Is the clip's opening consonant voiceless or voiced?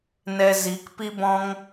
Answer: voiced